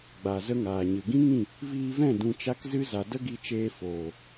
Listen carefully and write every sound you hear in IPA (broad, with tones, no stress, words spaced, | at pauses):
ɡ͡ba˨ zə˦ŋaː˨ɲɨ˨ ɡĩ˦ŋĩ˦˨ | viː˧vɛ̃˦˨ dũ˧t͡ʃa˦kzɨ˦ za˨də˦ɡi˧t͡ʃeː˧ foː˨